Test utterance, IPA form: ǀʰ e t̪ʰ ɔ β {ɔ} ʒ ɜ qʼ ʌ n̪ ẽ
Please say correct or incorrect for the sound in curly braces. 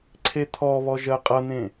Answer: correct